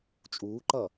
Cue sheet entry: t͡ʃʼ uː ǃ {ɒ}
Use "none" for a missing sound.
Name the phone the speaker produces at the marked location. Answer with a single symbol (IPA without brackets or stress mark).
ʌ